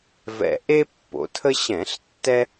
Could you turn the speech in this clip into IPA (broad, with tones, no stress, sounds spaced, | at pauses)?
v ɛ̰˧˩ ʔ e˥ pː o̰˩˧ tʰ ə˥ ɕ ɛ̃˧˩˧ ɬ tː ɛ˥